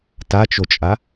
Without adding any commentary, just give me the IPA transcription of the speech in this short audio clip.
t a t͡ʃ o t͡ʃʼ a

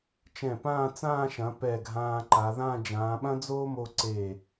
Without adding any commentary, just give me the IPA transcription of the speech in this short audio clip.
t͡ʃ ɛ̃˧˩ p ãː˥˧ t͡s ãː˥˧ ʃ ɐ̃˩˧ p ɛ˧˩ ɡʱ ãː˧ ǃ a˩˧ ð ã˥˧ d͡ʒ ãː˩˧ ɓ ɐ̃˥ d͡z oː˥ m o˧ ǀ e˧˩

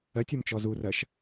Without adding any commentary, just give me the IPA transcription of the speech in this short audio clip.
ɜ tʲ ɔ m t͡ʃ ɔ z u r ɜ ʃ

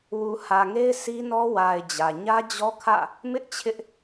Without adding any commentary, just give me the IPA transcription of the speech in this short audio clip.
w u˨ h ä˨ ŋ e˦ ɪ̯ sʰ i˦ n ɔ˦ w a˨ ɪ̯ d͡ʑ ä˨ ɲ ä˦ d͡ʑ ɔ˦ kʰ ä̰˦˨ | m ɪ˦ ʔ t͡ɕʰ ɪ˦ ʔ

